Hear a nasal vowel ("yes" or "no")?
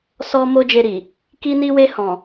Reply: yes